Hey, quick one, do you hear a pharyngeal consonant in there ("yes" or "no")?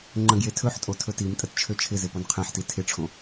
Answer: yes